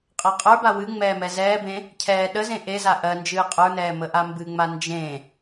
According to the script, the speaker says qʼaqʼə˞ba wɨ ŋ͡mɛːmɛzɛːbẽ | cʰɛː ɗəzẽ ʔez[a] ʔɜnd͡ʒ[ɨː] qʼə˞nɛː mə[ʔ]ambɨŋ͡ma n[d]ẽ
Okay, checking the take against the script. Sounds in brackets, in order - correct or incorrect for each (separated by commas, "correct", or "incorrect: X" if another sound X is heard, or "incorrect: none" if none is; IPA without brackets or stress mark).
correct, correct, correct, incorrect: d͡ʒ